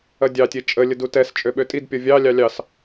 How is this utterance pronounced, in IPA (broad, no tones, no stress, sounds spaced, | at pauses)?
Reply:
ɐ dʲ ɑ tʲ e t͡ʃʼ ə lʲ ə d u t ɛ s t͡ʃʼ ø ɓ ø tʼ i d pʲ ɔ vʲ ɑ lʲ ɑ lʲ ɑ s